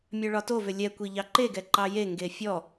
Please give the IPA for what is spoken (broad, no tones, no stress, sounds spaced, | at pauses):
mʲ œ ɭ ɒ t o v ʏ lʲ ɛ kʷ i ʎ ɑ ǃ e ɡ ɛ ǃ ɑ j e ŋ ɡ e fʲ ɔ